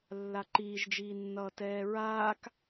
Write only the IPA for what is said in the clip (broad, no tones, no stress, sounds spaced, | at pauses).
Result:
lː a ǃ iː ʒ d͡ʒ iː nː ʌː t ɛː ɹ aː k